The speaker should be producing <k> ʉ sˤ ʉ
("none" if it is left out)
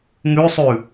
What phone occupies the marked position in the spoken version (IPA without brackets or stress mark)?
ŋ